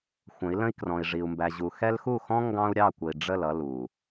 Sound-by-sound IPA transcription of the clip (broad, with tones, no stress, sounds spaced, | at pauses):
xʷ ə̃˨˦ i̯ l ə̃˦ i̯ k r ɔ̃˨ i̯ ʐ i˨ u̯ m b æ˨ ʑ u˨ x ɛ˦ l x u˦˨ x ɔ̃˦ ŋ ɡ ɑ̃˦ u̯ ɾʲ ɑ˦˨ kʷ ə˨ i̯ ɖ͡ʐ ə˦˨ l ʌ˦ l u˨